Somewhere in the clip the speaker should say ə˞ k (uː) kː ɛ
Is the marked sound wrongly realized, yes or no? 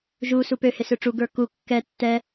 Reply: yes